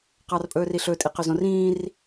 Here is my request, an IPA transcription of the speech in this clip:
q ɑ r pʼ ɵː r i ɬ ɵ tʼ i q ø z õ r ĩː r

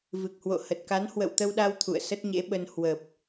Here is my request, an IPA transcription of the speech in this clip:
v ɨ˨˩ k̚ h w o̰˧˨ h ə˨˩ t̚ k a˨˦ n h w ə̰˧˨ w t̪ ə˧ w ɗ a˧ w t̪ʰ ṵ˧˨ ə̯ s ə˦˥ t̚ ɲ ḛ˧˥ ɓ ə˧ n h w ə˨˩ p̚

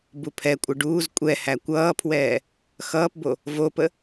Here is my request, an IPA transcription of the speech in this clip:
b u pʰ ɛ kʷʼ ə ɖ uː z kʷʼ ɛ h æ kʷ ʌː pʰ w ɛː | x ʌː p b o | v o p ə

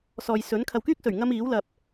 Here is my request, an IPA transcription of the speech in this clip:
s ɔː˨ j s ɵ˨˥ n kʰ ɐ˨ w k yː˥ k̚ s ɵ˨˩ ɥ ŋ ɐ˥ m iː˨˥ w l ɐ˨ p̚

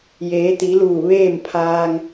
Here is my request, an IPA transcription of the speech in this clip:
j eː˩˧ t̪ i˩˧ l uː˧˩ ʋ eː˥˨ m pʰ aː˧ ŋ

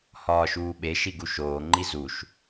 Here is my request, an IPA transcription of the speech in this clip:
h ɒː ʃ uː ɓ e ʃ i ɡ u ʃ oː ŋ͡ǃ i z u ʃ

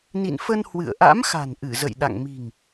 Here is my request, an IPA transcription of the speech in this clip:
n ḭ˧˨ n f ə˧ n h w ɨ̰˧˨ ə̯ ʔ a̰˧˥ m x a̤˨˩ n ʔ ɨ˧˩ z ə̰˧˨ j ɗ a̰˧˨ ŋ m i̤˨˩ ŋ

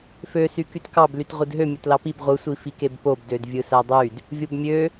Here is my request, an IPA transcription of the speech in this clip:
f ø s y k y t k ɑ b l y t ʁʷ ɯ d ɦ ø mʲ o t l ɑ p i b ʁʷ ɯ sʷ i f i k e b p o b d ø d vʲ ɯ s æ dˤ y d | vʲ o b mʲ ø

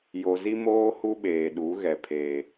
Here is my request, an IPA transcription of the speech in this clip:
j o˨ z i˦ m oː˦ h u˦ ɓ eː˨ ɗ u˨˦ ɣ ɛ˨ pʰ eː˨

